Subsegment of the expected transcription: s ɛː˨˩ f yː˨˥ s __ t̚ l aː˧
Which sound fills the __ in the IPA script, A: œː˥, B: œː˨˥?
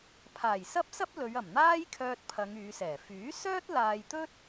A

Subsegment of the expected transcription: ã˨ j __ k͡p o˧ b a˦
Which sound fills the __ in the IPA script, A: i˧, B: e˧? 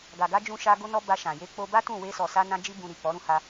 B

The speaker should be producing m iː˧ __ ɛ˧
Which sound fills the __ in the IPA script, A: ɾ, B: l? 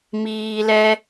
B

